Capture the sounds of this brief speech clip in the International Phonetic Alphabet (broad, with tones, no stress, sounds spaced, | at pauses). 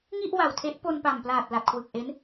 ŋ i˥˩ ʔ w a˨˩ w tʰ e˦˥ ʔ p o˧ n p a˨˩ m p l aː˨˩ t̚ l a˨˩ t̚ kʰ w ɯ˨˩ k̚ ʔ e˦˥ n